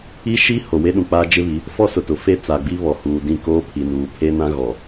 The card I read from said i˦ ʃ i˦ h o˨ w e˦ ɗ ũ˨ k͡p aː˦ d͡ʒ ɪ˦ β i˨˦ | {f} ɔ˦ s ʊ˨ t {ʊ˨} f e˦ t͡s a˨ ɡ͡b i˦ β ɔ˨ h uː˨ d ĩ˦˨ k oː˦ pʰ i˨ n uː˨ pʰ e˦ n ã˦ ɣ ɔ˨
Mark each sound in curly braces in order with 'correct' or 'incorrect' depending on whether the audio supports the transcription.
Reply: correct, correct

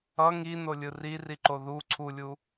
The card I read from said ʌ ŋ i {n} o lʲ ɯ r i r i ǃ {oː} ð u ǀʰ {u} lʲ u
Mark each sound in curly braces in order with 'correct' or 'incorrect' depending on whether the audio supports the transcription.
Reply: correct, incorrect: o, correct

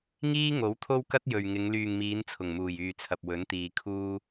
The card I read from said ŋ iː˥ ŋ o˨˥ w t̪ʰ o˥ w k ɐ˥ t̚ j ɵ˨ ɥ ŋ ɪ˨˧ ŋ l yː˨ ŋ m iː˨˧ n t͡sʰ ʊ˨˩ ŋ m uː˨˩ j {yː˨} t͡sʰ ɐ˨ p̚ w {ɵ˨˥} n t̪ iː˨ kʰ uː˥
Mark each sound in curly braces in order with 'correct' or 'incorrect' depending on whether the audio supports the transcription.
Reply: correct, correct

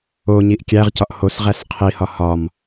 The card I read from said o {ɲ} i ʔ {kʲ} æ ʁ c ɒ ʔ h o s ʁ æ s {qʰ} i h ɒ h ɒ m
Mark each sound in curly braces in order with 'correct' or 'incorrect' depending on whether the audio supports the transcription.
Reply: correct, correct, correct

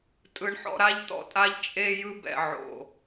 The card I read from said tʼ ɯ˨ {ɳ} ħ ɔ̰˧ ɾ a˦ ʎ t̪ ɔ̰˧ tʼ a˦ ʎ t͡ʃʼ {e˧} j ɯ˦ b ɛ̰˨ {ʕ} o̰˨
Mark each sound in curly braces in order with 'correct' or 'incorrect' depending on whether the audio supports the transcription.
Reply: correct, correct, correct

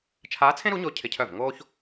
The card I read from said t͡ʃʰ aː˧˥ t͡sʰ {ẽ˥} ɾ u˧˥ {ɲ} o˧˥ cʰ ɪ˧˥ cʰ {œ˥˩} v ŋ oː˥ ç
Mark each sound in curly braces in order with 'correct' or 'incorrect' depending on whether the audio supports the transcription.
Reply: correct, correct, correct

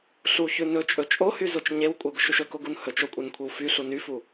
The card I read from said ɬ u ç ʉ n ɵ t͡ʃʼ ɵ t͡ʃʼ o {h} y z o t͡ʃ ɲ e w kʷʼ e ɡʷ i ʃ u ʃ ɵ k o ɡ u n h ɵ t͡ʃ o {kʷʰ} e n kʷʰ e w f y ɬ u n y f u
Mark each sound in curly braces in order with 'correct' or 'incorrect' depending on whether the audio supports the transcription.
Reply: correct, incorrect: kʷʼ

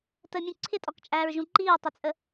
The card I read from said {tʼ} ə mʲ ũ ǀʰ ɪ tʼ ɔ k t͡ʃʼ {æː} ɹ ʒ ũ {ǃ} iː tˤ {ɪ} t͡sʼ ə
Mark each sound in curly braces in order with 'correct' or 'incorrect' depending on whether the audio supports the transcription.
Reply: incorrect: t, correct, correct, correct

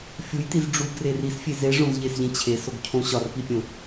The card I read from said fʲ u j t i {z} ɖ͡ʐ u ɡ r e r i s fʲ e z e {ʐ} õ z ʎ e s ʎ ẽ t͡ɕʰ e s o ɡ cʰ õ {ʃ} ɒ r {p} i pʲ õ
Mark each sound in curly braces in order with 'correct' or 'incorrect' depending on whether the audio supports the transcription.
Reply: correct, correct, incorrect: ɕ, correct

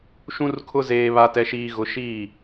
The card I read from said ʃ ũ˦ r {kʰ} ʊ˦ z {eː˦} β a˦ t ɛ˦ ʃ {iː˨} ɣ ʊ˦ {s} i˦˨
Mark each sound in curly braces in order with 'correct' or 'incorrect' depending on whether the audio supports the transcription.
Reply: correct, correct, incorrect: iː˦, incorrect: ʃ

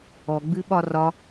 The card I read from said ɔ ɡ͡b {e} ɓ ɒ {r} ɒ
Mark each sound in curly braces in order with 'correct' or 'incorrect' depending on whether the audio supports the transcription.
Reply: incorrect: ɨ, correct

